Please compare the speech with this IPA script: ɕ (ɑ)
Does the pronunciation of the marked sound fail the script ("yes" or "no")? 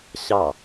no